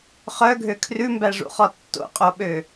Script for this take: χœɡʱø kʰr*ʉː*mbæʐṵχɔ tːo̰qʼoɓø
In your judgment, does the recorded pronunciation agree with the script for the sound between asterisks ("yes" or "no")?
no